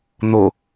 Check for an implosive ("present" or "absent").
absent